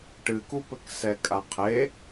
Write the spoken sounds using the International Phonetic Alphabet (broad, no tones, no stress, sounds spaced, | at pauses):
ʈ ɨ k u p ɘ k s ɛ kʼ a qʰ e